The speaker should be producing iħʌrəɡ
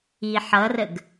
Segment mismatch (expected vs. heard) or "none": none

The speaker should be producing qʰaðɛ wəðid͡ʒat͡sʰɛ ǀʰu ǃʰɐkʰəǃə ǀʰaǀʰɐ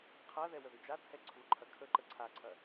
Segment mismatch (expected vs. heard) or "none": none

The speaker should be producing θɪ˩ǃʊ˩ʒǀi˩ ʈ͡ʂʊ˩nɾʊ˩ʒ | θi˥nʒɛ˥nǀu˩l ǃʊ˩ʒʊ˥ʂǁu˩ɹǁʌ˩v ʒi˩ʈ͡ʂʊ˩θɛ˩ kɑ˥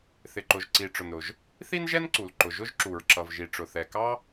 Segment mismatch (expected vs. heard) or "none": ʂ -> ʒ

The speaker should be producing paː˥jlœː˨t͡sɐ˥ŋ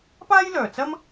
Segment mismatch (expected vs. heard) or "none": ŋ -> m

